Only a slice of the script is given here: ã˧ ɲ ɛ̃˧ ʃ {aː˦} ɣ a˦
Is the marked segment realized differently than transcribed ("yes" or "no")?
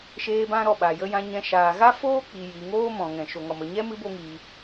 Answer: yes